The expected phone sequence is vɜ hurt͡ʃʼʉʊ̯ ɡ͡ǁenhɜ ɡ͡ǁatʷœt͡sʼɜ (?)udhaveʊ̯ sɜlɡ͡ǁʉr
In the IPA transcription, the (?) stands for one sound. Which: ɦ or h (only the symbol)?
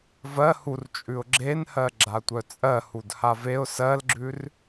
h